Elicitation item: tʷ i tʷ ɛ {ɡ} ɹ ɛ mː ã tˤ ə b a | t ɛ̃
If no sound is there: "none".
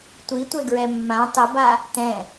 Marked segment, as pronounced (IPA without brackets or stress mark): ɡ